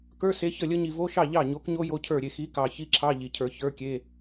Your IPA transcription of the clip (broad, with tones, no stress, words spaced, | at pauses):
kə˞˧˥˧se˨˥çə˥˩lʲə˦˥ ɲi˨vo˧˥˧ʃɑ˥˩ ʎɑ˥˩ ɲo˨˥kɲo˦˥ jo˧˥˧cʰə˞˥˩ɾʲe˥˩ xi˨˥kɑ˨ çi˦˥ǁʰɑ˧˥˧ʎi˨cʰə˞˨ çə˞˧˥˧kʲe˧˥˧